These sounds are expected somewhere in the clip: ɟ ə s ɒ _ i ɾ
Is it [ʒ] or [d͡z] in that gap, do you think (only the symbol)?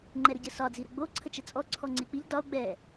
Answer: d͡z